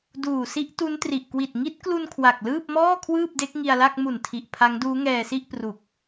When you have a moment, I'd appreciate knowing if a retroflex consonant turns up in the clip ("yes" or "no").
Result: no